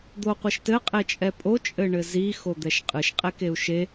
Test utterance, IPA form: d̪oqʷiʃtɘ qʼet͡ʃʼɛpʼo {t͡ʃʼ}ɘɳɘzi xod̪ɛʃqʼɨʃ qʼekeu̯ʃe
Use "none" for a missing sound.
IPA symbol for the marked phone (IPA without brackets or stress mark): t͡ʃʼ